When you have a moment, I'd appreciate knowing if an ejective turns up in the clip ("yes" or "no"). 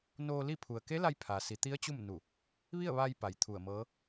no